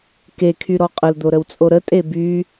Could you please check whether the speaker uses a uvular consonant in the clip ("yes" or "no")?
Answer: yes